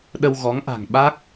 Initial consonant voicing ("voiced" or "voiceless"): voiced